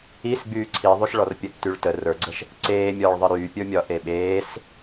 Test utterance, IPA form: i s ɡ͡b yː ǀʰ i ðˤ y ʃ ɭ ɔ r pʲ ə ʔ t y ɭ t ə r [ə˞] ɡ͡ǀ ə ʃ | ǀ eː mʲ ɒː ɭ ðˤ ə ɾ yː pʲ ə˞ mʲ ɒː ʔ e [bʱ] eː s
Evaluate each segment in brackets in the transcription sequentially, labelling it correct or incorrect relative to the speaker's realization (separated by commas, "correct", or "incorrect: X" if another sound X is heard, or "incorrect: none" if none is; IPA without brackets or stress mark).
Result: correct, incorrect: ɓ